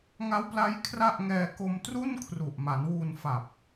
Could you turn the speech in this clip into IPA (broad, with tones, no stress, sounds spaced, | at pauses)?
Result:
ŋ a˦˥ w p l a˦˥ j kʰ r a˥˩ ʔ ŋ ɛː˧ k o˧ m t r u˥˩ n kʰ r u˨˩ ʔ m a˩˦ n w uː˧ n f a˨˩ p̚